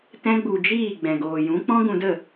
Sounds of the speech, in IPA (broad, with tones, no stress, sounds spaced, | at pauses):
t ɛ̃˦ ɡ͡b u˧ d͡ʒ iː˦˨ ɡ͡b ɛ̃˨ ɡ oː˨ j ũ˨˦ k͡p ɔ̃˦ ɡ ũ˧ d ə˦˨